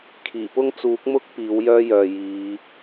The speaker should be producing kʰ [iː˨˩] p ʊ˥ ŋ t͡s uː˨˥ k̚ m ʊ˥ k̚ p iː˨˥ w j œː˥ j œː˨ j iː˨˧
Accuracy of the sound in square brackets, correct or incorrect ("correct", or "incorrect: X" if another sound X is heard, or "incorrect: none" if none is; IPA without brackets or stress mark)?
correct